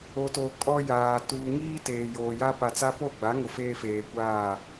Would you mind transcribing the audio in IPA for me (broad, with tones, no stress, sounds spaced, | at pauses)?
o˨ t o˨ kʼ ɔ˦ j aː˨ t uː˨ ŋ iː˦ t eː˨ j oː˨ j a˦ p a˨ t͡s a˦ p o˦˨ ɡ͡b a˨˦ ŋ ʊ˨ f eː˦ f eː˨ kʷ aː˦˨